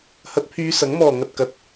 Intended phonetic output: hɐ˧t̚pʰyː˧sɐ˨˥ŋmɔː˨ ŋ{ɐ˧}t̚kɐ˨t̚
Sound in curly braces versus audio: incorrect: ɐ˨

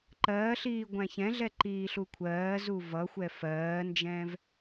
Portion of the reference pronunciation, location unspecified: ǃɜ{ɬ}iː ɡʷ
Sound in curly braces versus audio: correct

